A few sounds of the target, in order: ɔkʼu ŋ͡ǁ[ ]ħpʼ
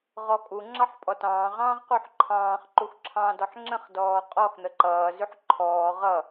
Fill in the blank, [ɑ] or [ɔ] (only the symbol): ɑ